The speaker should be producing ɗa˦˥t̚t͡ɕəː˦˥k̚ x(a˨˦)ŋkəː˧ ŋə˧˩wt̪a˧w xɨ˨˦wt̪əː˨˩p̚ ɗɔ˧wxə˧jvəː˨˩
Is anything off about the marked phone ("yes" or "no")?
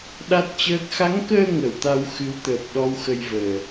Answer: no